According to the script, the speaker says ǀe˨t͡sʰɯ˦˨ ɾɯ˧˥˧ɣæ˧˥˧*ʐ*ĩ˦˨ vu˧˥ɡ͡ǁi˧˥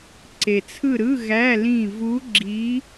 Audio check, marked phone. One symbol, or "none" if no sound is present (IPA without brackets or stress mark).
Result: l